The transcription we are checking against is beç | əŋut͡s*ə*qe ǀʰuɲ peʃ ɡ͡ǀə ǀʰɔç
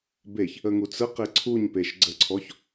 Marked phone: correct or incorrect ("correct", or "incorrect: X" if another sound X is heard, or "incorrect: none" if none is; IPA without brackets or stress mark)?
correct